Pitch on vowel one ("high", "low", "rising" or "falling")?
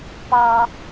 low